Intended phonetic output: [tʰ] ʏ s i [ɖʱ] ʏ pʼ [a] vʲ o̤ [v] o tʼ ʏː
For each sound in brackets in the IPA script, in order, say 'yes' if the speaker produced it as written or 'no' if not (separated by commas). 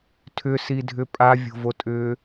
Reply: yes, no, yes, yes